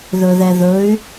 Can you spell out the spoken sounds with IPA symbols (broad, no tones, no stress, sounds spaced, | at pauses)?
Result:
ð ɵ ð ɛ ð ɵ y̯